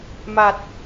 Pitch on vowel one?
low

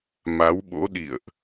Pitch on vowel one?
rising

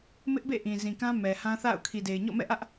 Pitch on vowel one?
high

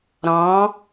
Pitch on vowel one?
rising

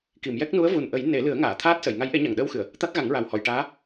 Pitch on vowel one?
low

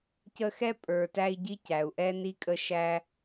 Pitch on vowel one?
high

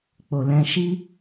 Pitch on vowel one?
low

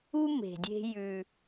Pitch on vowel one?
high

